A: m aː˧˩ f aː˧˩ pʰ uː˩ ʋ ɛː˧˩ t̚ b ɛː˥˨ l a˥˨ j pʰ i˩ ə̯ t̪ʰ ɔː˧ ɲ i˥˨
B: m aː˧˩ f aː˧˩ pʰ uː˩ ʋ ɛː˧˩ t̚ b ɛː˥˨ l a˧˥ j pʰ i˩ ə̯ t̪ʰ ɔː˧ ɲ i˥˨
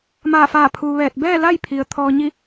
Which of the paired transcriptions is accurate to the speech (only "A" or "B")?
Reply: A